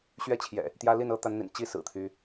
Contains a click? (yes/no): no